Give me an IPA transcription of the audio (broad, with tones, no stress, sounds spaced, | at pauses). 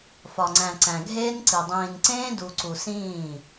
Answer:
f ɒ˨ ŋ͡ǀ æ̃˨ ǀ æ̃˨ ɡʱ eː˦ n ǀ i˨ dˤ ĩː˨ n ǀ ẽː˦ d u˨ ǀ u˨ s ĩː˦˨